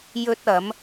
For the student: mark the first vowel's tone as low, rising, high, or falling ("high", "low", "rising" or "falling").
high